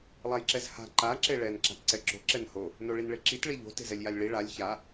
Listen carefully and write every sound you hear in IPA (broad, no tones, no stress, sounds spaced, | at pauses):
lˠ a j ǁ ɛ z h a̤ ǃ a ǁ e ɭ ɛ n ǁ a̤ t ǀ ɛ ǁ o̤ ǁ ɛ n h o | n o ɭ i n ɭ e ǁ i t ɭ i ʎ o̤ t e̤ z ɛ lʲ j a lʲ ɭ i ɭ a lʲ ç a